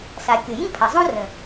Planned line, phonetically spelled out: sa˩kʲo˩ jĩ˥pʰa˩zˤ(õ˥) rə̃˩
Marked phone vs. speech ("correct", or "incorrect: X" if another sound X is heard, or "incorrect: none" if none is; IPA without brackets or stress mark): correct